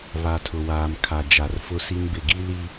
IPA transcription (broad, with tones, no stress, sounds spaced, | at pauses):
β a˨ tʰ ʊ˨ w aː˨ m kʰ a˨ d͡ʒ a˨ r f ʊ˦ s i˦ n b ɪ˦˨ ɡ i˦ l i˦